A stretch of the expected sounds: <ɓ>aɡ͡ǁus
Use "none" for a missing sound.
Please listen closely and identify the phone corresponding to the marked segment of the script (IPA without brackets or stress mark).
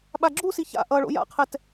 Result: ɓ